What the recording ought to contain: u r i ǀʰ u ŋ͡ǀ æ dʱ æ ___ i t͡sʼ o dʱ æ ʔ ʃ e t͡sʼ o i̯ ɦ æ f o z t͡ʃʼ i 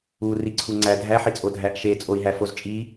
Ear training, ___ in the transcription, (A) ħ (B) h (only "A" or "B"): A